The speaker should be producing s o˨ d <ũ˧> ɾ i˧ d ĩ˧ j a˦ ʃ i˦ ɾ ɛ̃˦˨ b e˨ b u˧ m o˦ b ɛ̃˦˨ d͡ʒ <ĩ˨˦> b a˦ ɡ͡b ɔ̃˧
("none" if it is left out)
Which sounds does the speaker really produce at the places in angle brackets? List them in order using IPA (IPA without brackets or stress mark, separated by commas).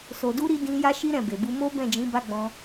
u˧, ĩ˨˦